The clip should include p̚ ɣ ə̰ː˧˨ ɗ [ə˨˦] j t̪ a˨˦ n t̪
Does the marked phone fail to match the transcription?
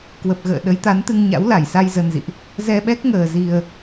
no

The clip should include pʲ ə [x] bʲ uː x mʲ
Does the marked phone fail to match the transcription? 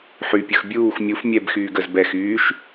no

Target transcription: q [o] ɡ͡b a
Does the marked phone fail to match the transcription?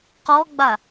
yes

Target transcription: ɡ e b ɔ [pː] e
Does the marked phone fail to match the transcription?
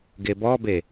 yes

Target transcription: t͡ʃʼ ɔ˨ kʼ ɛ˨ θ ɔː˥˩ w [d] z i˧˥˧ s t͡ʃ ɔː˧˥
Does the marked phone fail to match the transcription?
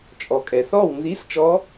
yes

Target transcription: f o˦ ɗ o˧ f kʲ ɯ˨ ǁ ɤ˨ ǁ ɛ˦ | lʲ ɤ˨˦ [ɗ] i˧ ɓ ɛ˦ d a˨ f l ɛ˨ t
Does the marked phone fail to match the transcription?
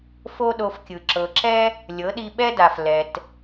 no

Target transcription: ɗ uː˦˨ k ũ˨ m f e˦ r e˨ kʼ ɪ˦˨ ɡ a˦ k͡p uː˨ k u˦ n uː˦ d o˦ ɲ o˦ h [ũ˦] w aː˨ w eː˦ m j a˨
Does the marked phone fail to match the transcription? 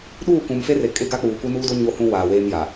no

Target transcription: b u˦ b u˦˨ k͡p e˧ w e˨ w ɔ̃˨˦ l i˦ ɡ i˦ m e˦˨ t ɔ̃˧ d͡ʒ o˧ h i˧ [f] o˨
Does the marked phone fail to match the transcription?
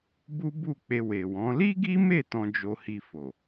no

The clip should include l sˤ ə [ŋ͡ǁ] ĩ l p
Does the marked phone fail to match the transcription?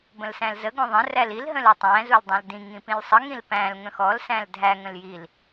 yes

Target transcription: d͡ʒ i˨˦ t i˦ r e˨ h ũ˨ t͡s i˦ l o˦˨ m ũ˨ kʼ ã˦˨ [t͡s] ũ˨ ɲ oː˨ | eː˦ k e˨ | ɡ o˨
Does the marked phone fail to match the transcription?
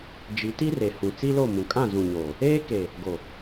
yes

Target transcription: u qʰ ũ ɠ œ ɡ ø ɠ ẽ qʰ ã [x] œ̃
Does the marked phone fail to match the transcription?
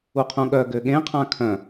yes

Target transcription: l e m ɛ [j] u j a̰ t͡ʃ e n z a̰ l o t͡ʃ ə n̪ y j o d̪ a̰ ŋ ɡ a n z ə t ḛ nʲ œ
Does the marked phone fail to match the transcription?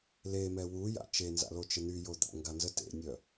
yes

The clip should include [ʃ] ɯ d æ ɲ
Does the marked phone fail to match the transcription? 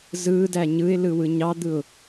yes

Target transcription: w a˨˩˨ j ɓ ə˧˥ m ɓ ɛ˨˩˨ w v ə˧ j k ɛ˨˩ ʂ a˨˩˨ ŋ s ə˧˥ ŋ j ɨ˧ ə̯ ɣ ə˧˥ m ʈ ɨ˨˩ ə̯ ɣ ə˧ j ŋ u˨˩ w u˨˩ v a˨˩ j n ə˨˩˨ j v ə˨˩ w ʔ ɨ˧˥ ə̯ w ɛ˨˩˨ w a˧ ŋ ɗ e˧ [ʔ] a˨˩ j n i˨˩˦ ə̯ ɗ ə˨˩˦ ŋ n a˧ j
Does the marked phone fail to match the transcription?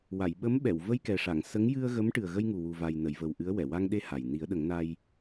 yes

